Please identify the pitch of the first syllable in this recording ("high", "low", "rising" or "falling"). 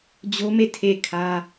high